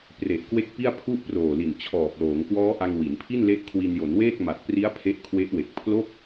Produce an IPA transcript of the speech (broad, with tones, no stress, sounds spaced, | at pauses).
p r e˨˩ ʔ k w e˦˥ k̚ p i˥˩ a̯ pʰ u˥˩ ʔ p r oː˨˩ l i˨˩ n t͡ɕʰ ɔː˨˩ p̚ l oː˩˦ ŋ k w ɔː˦˥ ʔ a˧ ŋ w i˩˦ n pʰ i˥˩ n l e˦˥ ʔ kʰ w i˧ n j o˩˦ n w eː˥˩ k̚ m a˨˩ t̚ p r i˦˥ a̯ pʰ e˦˥ ʔ kʰ w e˦˥ ʔ w e˨˩ k̚ pʰ l o˥˩ k̚